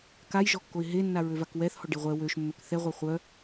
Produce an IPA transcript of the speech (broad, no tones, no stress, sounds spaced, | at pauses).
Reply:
k a j ʒ ɔ kː o ɪ̯ ɦ e nː a ɹ ø v a k w ɛ θ h ɔ ɖ e ʁʷ ɛ w ø ʃ mː ø k θ ɛ ʁʷ œ χʷ œ